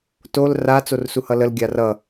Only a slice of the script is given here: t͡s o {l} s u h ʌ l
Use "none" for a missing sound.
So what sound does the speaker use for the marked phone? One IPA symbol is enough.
r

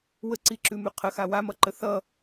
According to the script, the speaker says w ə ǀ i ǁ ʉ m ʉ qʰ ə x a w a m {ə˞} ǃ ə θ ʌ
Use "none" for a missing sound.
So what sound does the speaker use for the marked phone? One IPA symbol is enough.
ʌ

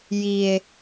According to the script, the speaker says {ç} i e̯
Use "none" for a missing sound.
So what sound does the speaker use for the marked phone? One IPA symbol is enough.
j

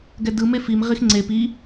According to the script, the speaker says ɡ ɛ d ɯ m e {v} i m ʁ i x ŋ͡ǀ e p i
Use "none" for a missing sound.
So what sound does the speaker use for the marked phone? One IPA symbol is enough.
f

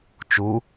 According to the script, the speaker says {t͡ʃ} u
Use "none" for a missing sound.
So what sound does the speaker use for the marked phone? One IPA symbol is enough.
t͡ʃ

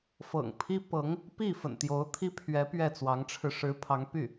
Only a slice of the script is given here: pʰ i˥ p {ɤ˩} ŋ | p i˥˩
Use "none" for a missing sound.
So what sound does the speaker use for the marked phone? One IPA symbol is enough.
ɤ˧˥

